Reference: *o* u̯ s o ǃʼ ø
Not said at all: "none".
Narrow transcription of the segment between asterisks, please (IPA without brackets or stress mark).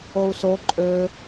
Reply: o